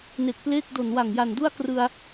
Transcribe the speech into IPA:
n e˨˩ k̚ p l eː˥˩ k̚ d o˨˩ n w a˨˩ ŋ j a˨˩ n d u˥˩ a̯ k r ɯ˧ a̯

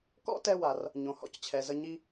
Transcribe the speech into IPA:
k ɔ̰˥ t ɛ˧ w a˩ r | ɲ õ˩ h ɔ̰˥ c t͡ɕʰ ɛ˩ z ə˧ ɲ i˧

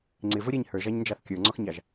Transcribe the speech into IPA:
ŋ͡ǀ ɪ v ə ɾʲ ɛ ɲ h ə˞ ʒ ɑ ɲ n d͡ʒ ɑ θ kʲ ə˞ ŋ͡ǀ ɔ x ɲ ɑ ʒ

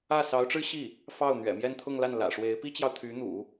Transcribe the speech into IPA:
ä˥˩ s ɑ˧˥ ʊ̯ ʈ͡ʂ ɻ̩˥ ɕ i˥˩ | f ɑ˥˩ ʊ̯ n̪ ɥ ɛ̰˨˩ m j ɛ˥˧ n t̪ʰ ʊ˥˧ ŋ l a˥˩ n l ä̰˨˩ ʂ w e˧˥ ɪ̯ p i˥ t͡ɕ j ɑ˨ ʊ̯ t̪ʰ y˧˥ n̪ ṵ˨˩˦

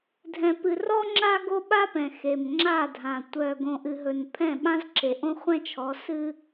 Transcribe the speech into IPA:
dʱ ɛ̃˨ p ɨ˨ r ɔ˦ ŋ͡ǁ a˦ ɡ o˦ ɓ a˦ p ɛ̃˨ x e˨ m ŋ͡ǁ a˦˨ dʱ ã˨ tʷ œ˨ ɡ õ˨ ʔ ɨ˨ ɦ ɵ˨ n pʰ ɛ̃˦˨ ɓ ã˦ z ǁ e˨ ʔ õ˦ χʷ ɛ̃˦ t͡ʃʰ ɔ˨˦ s ɨ˦

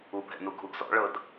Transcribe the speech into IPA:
u bʱ ɛ̰ n u ɡʱ u ɡ z ɔ̰ ɭ ɤ d

